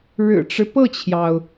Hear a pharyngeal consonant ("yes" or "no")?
no